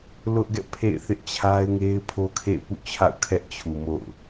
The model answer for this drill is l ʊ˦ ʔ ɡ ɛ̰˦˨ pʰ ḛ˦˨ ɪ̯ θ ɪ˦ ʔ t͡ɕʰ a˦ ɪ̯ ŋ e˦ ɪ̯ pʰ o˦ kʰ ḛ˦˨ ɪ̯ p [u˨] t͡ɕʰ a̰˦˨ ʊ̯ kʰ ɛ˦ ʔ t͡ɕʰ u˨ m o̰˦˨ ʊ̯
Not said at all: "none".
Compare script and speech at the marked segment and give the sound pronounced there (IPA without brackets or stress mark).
ṵ˦˨